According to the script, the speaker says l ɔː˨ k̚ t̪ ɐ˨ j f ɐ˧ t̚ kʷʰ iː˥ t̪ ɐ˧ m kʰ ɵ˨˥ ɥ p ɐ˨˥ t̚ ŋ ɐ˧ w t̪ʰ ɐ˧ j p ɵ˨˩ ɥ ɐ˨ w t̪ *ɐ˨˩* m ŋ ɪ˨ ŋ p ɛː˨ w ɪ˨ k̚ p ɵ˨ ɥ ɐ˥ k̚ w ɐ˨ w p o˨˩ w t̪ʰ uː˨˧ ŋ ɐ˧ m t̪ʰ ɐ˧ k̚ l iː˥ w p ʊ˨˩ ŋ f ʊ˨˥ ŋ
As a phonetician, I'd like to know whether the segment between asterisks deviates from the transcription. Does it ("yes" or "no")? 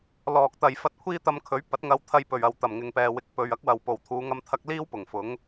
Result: no